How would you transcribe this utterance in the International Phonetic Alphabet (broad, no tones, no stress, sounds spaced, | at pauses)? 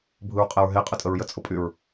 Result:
bʱ ɯ ɹ qʼ ɛ ɹ ɦ e qʼ ə tʼ ə ɹ j ə t͡sʼ ʊ pʼ y ɹ